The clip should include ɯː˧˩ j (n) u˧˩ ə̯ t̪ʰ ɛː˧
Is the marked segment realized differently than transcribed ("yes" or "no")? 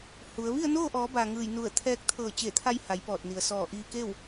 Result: no